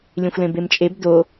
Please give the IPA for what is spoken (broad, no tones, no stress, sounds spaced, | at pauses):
lʲ ẽ xʷ l ẽ b e m t͡ʃʼ e b d o